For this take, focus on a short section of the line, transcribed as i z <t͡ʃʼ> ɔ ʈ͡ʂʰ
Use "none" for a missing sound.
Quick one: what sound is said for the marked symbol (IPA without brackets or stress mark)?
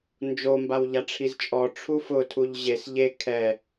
t͡ʃʼ